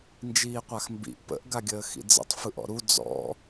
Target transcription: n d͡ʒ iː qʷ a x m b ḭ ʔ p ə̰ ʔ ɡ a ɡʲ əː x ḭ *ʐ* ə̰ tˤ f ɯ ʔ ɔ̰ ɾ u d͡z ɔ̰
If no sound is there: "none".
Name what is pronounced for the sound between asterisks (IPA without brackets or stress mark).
d͡z